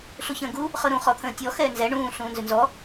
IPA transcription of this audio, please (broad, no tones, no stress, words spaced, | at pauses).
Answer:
ɬuçə̃ːɡu | χɤɾũ χɔt̪ʰə̃ːtʲɔ xɛːnzɛ ɳũː ɬũːnzʏnzɔ